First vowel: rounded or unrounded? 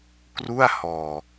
rounded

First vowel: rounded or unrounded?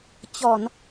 rounded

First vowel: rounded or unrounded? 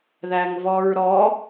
unrounded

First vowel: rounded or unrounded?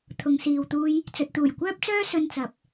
rounded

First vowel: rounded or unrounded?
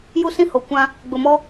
rounded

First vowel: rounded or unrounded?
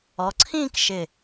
rounded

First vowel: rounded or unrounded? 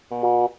rounded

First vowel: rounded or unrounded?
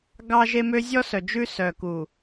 unrounded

